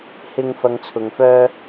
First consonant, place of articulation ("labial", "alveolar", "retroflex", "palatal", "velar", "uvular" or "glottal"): glottal